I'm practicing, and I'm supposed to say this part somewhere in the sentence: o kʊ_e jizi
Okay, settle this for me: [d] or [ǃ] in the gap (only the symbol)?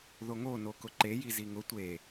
ǃ